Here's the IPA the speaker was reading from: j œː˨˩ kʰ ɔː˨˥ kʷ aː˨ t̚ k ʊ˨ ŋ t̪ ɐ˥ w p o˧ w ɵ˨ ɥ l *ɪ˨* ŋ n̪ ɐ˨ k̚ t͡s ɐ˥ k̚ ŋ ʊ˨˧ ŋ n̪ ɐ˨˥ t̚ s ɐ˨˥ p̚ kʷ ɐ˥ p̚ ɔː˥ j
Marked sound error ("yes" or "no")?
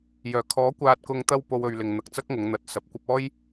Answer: no